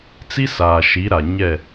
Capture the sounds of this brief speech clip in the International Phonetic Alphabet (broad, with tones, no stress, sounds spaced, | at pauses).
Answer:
t͡s i˦ s aː˨ ʃ i˨˦ ɾ a˨ ɲ ɛ˦˨